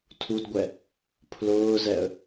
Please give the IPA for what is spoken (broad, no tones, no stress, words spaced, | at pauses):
tʰudɡʷɛ | pʰlʊːzɛə̯